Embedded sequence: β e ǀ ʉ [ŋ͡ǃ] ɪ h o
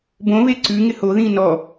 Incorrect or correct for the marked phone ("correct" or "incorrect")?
incorrect